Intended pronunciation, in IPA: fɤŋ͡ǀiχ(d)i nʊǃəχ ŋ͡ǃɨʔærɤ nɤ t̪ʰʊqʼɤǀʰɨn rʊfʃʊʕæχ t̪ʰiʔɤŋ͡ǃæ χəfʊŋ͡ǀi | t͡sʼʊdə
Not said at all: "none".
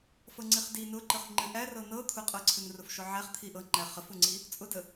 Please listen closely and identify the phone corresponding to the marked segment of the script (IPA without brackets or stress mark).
d